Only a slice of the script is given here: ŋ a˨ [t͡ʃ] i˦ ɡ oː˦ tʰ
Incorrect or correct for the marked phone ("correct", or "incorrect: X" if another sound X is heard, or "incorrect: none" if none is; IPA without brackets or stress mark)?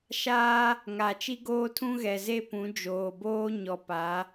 correct